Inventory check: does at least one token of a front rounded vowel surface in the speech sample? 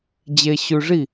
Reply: no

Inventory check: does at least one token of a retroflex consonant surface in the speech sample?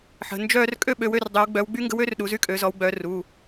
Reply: no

